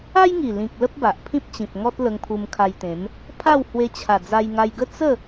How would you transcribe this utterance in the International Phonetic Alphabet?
a˦ j ŋ i˨˩ l ĩ˨ k̚ l ə˦ p̚ b a˨ ʔ pʰ ĩ˦ p̚ t͡ɕ ĩ˨ p̚ ŋ ɔ˦ t̚ l ə˧ ŋ pʰ u˧ m kʰ a˧ j t̪ ẽ˨˦ m | pʰ a˥˧ w h w e˧ t͡ɕʰ a˨˩ d͡z a˧ j ŋ a˧ j ɡ ə˥˧ t͡s ə˥˧

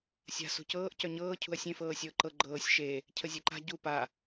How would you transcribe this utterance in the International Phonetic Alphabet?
sʲ a̤ s ṳ c ɤː ʔ c œ ɲ ɤː cʰ ṳ ɐ̯ sʲ ẽ f ɤː sʲ ɤː ǃ ɤ ɡ͡ǃ ɤː sʲ ʃ e | cʰ ə zʲ e ǃ a̤ ɟ u p a

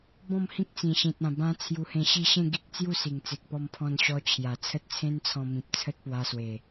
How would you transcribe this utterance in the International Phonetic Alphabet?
b ɔ̃˥˧ m h ĩ˦ k̚ t͡s ĩ˨˩ ɕ ĩ˨ t̚ ã˨˩ b ã˦ t͡sʰ j u˧ h ẽ˧ ɕ i˥˧ ɕ ẽ˥˧ ɡ i˦ k̚ t͡s j u˥˧ s i˨˩ ŋ t͡s e˨ k̚ p ɔ˧ m pʰ ɔ̃˧ n ɕ ɔ˧ t͡ɕʰ j a˨˩ t͡sʰ ə˦ t̚ t͡sʰ ẽ˦ n t͡sʰ ɔ̃˧ m ĩ˨ p̚ t͡sʰ ə˦ t̚ p w a˧ s w e˨˩

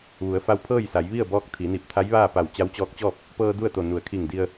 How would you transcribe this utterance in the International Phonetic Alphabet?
ʋ u˩˧ ə̯ f a˧ w pʰ ɤː˥˨ j s a˩˧ j ʋ i˥˨ ə̯ b ɔː˧˥ k̚ t̪ʰ i˩˧ n i˧˩ p̚ t̪ʰ a˧˥ j ʋ aː˥˨ p a˧˩ w t͡ɕ a˧˥ w t͡ɕ ɔː˧˥ k̚ t͡ɕ ɔː˥˨ p̚ | p ɤː˧ d u˥˨ ə̯ t̪ o˧˩ n u˩˧ ə̯ kʰ i˧˩ ŋ d i˧ ə̯

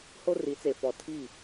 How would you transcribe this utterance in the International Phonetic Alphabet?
h o˦ r i˨˦ t͡s e˨ f ɔ˨ tʰ i˦˨

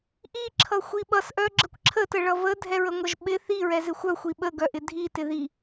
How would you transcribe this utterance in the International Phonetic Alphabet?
ʔ i ǁʰ ʌ xʷ i ɓ ʌ s ʔ œ ɡ͡ǁ ə kʷ ǁʰ ə t ə ɭ ʌ v ə dʱ ɛ ɹ ə ŋʷ ʌ ʒ ɓ ɪ θ i ɹ ɛ z ɪ xʷ œ xʷ i ɓ ə ɡ œ ʔ ɪ dʱ i t ɪ ð i

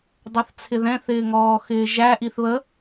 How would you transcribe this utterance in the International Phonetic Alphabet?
dˤ ʌ θ t͡sʰ ɪ ð ɛ̃ θ ɪː ŋ ɔː x ɪː ʒ æ ʔ i θ β ə

